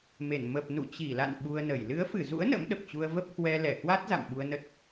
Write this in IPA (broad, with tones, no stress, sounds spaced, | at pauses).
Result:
m e˧˩ n m ə˨˩ p̚ n ṵ˧˨ t͡ɕ i˧˩ l a̰˧˨ n ɓ u˧ ə̯ n ə˧˩ j l ɨ˨˦ ə̯ f ɨ˧˩ z ṵ˧˥ ə̯ n ə̰˧˥ m ɗ ə˨˩ p̚ t͡ɕ u˧ ə̯ v ə˦˥ p̚ h w ɛ˧ l ɛ˧˩ h w a˦˥ t̚ z a̰˧˨ m ɓ u˧ ə̯ n ə˦˥ t̚